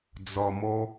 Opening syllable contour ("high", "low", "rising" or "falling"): low